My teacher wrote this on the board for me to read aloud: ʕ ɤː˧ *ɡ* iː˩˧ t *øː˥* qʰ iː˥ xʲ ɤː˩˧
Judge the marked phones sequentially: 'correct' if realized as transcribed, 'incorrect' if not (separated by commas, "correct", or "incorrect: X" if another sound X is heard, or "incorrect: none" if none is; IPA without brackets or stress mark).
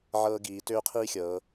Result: correct, correct